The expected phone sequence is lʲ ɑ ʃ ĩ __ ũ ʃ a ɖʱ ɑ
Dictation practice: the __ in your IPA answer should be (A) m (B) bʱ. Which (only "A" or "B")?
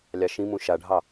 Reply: A